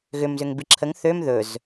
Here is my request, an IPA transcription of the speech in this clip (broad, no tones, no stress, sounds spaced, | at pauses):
ɣ ʏ m z ʏ ŋ b i ǁʰ ə ŋ θ ø m ð ɵ z